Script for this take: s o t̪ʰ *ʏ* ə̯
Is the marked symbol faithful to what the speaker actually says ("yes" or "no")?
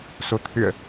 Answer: yes